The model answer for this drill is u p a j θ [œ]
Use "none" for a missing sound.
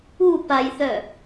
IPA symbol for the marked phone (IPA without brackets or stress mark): œ